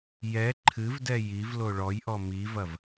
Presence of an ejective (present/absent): absent